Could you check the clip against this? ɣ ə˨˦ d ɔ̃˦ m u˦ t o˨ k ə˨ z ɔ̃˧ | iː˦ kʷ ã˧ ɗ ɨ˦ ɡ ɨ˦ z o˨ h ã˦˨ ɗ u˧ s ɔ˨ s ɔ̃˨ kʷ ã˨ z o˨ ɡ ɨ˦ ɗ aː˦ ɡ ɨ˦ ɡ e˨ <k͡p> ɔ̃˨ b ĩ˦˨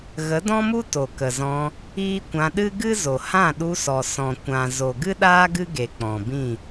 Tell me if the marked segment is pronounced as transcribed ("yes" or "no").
yes